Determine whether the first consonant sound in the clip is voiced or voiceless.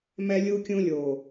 voiced